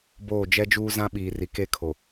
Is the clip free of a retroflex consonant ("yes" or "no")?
yes